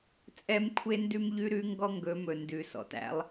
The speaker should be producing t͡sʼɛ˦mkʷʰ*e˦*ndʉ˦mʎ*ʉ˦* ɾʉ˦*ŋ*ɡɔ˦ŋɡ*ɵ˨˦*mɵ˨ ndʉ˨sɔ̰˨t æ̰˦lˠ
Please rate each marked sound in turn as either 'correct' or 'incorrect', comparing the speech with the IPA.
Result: correct, correct, correct, correct

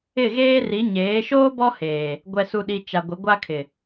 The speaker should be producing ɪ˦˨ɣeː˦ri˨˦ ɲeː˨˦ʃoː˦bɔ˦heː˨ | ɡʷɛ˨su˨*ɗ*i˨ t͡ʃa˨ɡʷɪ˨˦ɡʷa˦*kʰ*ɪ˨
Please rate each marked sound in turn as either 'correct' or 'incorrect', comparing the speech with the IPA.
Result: correct, correct

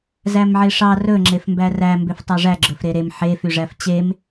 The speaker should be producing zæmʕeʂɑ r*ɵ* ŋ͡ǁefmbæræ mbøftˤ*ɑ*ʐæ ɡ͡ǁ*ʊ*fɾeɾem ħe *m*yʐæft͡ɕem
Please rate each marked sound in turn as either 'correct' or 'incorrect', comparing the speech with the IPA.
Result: correct, correct, incorrect: ɵ, incorrect: f

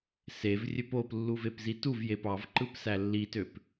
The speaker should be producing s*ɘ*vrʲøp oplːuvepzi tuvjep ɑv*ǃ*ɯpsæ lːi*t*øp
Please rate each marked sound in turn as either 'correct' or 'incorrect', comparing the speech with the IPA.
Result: incorrect: e, correct, correct

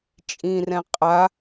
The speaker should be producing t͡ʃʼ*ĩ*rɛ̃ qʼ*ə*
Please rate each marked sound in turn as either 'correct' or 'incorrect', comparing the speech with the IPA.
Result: correct, incorrect: a

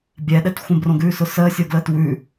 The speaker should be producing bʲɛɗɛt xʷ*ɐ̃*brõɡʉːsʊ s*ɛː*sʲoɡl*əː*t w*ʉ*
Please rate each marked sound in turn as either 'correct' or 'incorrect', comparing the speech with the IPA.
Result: incorrect: ə̃, incorrect: əː, correct, correct

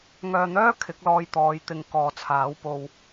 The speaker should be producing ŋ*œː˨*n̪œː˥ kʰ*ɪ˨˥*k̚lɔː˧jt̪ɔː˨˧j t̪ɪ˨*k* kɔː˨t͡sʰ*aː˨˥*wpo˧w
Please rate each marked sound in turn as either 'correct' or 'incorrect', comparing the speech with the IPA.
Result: correct, correct, incorrect: ŋ, correct

